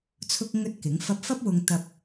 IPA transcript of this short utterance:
t͡sʰʊ˧k̚ŋɵ˧t̚ kɪ˨˥ŋ fɐ˧p̚fɐ˥p̚ wʊ˧ŋ t̪ɐ˧p̚

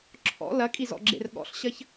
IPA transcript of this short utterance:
ǁʰɔ̰ lɐkʼizɔ̰ɡ͡ǁḛr ɠɔ̰ɬɕɐç

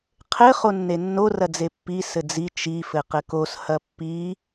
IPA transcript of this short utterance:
qʰɘ χonːenːo rɐd͡zepːi sɘd͡zi t͡ʃi fɘqɘkos hɐpːi

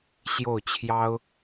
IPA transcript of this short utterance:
ɕjo˥˩ʊ̯t͡ɕʰjɑ˥ʊ̯

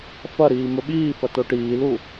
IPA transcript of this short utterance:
fɐɾiː mɵɓiːfɐ toʈiːlu

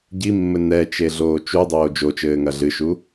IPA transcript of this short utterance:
ɟimːɘ nɛt͡ʃeɮoː t͡ʃudˤoː d͡ʒot͡ʃɘːŋɐ ɮɨʃu

